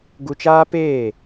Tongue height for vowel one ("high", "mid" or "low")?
high